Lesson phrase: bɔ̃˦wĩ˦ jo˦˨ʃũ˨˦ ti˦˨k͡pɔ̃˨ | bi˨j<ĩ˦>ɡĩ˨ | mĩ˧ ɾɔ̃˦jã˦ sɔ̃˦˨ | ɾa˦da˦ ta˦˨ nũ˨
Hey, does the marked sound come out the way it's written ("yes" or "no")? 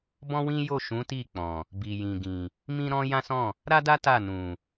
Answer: no